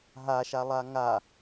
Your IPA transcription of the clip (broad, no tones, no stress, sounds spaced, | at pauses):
ɦ a ʃ a lˠ a ŋ a